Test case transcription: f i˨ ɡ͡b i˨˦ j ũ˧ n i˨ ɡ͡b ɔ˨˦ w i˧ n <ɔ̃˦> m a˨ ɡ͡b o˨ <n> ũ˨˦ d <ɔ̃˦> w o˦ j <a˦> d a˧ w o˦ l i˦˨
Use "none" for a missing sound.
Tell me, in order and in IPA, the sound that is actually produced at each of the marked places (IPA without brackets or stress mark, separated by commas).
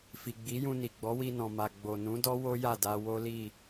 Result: ɔ̃˨, n, ɔ˦, a˦˨